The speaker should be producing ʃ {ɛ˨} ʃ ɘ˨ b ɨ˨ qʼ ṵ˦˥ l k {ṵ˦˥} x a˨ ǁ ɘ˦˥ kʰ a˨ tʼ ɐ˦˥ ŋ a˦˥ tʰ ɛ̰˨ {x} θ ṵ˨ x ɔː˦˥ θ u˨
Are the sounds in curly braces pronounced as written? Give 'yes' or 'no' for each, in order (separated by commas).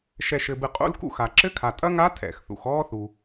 yes, yes, yes